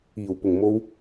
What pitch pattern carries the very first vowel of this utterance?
low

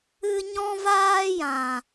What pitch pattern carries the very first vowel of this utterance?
high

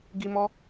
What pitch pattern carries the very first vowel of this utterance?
high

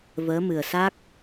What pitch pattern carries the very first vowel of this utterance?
rising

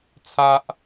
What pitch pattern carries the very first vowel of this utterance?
high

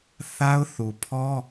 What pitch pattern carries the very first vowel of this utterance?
high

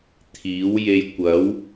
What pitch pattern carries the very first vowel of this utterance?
rising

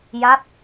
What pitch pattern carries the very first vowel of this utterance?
falling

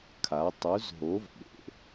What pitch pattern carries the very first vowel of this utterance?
rising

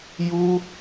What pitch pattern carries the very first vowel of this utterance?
high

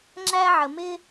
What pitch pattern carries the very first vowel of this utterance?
high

